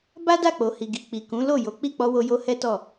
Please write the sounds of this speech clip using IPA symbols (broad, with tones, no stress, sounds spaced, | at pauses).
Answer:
b a˦ d a˦˨ k͡p o˨ h i˨ ɡ i˨ k͡p i˨ k ũ˨˦ l o˦˨ j o˨˦ k͡p i˦˨ k͡p ɔ˧ w o˧ j o˧ h ɛ˦ t ɔ˦˨